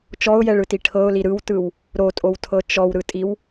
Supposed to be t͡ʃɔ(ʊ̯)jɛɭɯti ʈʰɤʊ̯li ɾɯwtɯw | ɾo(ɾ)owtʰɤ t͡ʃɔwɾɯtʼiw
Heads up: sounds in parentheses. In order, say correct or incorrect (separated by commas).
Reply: correct, incorrect